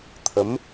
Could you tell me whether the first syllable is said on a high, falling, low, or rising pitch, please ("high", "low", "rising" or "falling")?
rising